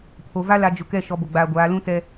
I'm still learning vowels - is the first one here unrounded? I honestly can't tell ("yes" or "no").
no